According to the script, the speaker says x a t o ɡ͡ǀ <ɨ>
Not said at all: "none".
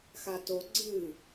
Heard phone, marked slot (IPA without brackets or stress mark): ɨ